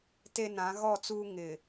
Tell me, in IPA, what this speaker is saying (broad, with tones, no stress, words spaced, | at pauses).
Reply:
te˦ nã˨˦ɣɔ˦˨t͡suː˦ ŋɪ˨